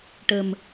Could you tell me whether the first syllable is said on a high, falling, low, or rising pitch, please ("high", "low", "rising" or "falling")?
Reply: low